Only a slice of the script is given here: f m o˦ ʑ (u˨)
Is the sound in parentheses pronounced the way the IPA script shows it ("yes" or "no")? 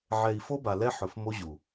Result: yes